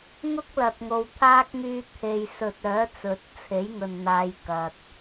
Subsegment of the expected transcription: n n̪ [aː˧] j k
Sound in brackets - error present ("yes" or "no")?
yes